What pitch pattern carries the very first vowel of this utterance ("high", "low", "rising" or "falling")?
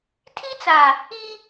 high